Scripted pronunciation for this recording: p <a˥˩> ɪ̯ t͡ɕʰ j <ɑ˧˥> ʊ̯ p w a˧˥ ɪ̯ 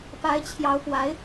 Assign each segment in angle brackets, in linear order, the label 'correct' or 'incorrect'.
incorrect: a˧˥, correct

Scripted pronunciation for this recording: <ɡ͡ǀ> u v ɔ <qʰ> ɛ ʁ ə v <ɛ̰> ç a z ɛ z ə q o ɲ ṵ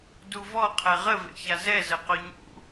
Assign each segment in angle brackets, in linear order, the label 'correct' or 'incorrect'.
incorrect: d, correct, incorrect: ḛ

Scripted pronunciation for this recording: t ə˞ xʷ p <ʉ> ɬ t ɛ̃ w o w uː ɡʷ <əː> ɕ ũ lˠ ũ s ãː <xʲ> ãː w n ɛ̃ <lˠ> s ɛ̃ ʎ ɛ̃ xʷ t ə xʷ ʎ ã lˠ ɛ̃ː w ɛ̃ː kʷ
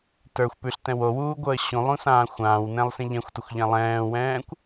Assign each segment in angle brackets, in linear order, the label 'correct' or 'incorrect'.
correct, correct, incorrect: xʷ, correct

